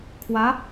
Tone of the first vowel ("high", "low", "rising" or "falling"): rising